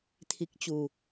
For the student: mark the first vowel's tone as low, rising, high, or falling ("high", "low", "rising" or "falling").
low